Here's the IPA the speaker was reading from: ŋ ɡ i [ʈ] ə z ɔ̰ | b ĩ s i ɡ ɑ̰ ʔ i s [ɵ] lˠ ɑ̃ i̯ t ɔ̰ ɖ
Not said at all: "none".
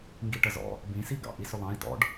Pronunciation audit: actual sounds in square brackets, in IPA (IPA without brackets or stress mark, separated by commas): ʈ, ɵ